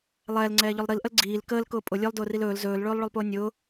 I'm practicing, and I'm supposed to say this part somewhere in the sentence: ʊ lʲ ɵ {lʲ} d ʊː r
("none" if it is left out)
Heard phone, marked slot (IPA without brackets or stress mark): lˠ